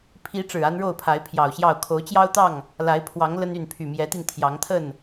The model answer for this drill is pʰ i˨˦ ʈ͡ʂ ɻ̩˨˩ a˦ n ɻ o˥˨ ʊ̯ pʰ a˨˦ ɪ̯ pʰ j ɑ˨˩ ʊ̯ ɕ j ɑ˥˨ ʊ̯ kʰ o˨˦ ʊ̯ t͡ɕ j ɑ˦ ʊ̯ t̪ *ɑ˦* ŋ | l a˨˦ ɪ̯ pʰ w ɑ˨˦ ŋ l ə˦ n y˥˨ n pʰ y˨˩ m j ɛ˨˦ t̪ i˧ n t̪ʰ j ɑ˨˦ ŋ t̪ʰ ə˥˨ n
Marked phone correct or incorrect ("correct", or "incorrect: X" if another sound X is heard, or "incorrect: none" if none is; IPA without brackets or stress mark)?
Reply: incorrect: ɑ˥˨